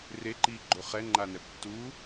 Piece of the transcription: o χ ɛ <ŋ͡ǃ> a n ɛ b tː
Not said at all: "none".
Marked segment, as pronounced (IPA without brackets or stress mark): ŋ͡ǃ